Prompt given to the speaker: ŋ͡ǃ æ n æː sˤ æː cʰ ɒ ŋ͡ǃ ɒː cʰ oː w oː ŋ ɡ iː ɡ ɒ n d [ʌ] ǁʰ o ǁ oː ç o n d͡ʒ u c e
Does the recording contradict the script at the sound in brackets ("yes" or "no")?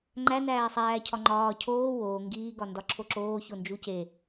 yes